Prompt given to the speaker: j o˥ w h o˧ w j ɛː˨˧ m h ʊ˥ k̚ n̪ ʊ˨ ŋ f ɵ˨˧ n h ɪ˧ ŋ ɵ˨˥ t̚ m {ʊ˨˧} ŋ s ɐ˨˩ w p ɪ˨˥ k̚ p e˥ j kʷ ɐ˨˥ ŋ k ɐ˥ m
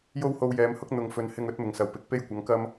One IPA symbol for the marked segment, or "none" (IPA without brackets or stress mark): ʊ˨˩